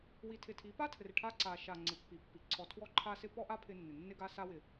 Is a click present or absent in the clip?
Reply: present